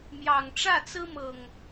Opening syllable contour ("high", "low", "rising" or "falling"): low